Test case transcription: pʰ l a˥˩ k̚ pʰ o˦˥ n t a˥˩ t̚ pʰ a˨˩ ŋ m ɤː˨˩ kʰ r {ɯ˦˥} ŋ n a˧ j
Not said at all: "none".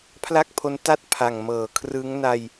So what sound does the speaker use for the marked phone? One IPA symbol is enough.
ɯ˦˥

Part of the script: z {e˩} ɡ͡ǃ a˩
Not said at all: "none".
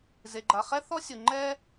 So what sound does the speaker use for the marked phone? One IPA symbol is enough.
e˩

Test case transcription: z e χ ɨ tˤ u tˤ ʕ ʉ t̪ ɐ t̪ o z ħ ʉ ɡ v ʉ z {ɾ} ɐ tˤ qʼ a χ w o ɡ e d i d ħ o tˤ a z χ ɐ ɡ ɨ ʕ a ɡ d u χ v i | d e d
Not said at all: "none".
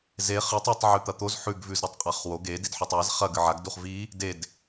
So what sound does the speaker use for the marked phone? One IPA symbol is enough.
ɾ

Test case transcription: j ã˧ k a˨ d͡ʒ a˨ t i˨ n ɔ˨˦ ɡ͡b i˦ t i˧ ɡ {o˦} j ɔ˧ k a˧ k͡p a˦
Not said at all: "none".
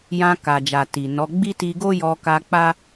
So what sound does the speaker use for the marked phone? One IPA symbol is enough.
o˦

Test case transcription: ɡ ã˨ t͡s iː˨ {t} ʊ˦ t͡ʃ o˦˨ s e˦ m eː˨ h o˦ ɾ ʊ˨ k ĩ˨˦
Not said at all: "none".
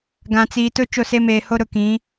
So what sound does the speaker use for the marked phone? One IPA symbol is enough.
t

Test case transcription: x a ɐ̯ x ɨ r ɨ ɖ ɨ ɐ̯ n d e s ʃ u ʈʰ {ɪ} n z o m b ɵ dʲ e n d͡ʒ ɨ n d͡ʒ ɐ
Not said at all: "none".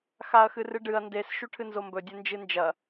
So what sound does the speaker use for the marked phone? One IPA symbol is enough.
ɨ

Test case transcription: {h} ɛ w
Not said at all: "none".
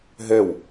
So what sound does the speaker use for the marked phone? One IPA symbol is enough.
ɦ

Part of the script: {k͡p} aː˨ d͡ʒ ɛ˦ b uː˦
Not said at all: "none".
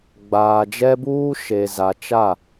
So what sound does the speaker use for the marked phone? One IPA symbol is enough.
ɡ͡b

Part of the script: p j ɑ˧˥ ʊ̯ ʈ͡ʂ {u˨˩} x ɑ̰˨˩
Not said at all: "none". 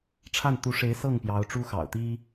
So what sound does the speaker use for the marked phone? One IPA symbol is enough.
u˥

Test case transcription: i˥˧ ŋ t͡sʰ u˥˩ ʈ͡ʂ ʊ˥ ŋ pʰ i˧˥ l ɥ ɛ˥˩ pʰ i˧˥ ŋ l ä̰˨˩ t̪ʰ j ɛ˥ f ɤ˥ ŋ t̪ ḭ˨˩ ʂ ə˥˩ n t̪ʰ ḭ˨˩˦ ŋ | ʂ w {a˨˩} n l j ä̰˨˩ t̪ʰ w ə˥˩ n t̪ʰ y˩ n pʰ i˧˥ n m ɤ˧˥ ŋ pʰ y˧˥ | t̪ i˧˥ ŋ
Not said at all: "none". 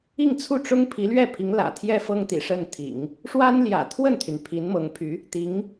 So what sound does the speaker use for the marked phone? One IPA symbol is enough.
a˥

